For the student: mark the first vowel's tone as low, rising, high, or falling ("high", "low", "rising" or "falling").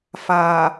low